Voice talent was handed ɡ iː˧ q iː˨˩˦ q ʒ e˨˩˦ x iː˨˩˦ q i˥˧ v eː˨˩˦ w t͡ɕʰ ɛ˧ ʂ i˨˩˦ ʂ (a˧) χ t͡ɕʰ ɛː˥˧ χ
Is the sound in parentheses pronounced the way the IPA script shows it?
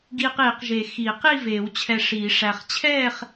no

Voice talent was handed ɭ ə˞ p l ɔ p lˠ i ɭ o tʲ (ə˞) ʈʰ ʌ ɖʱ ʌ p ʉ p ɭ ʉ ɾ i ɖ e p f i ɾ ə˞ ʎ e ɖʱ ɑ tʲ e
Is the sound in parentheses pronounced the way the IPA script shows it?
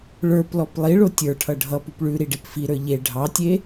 yes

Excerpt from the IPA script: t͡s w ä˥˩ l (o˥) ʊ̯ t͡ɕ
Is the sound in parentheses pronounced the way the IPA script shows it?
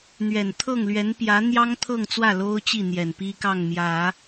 yes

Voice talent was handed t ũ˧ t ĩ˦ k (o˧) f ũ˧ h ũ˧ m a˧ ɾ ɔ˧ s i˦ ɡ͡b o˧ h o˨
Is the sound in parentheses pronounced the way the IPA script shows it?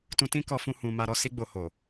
no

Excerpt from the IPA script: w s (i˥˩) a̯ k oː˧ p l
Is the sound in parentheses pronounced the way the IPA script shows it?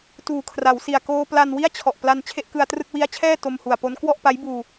no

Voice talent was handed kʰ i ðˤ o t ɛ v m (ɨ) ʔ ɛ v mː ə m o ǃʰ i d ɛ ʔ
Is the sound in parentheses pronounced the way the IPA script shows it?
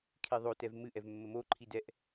yes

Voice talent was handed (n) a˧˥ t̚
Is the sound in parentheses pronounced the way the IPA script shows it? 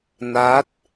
yes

